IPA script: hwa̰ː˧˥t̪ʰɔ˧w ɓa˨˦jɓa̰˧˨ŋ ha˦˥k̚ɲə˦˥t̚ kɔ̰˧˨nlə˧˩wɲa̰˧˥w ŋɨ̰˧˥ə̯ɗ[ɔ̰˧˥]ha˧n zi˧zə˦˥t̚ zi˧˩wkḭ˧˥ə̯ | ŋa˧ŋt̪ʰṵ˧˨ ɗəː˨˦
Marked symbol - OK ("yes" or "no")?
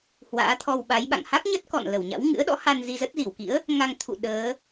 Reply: yes